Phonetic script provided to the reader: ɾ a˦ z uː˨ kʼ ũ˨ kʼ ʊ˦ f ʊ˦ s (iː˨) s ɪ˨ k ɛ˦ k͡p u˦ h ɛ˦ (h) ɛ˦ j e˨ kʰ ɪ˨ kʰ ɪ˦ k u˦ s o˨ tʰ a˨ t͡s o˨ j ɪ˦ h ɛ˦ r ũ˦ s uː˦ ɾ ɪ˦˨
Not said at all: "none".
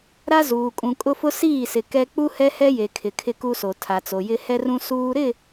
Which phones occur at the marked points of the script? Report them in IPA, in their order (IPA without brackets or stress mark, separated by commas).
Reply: iː˦˨, h